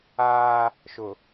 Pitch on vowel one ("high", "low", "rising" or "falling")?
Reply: high